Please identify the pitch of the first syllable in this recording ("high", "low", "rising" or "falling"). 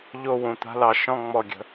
falling